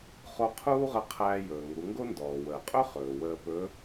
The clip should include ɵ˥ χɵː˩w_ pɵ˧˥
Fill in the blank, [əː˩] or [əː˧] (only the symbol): əː˧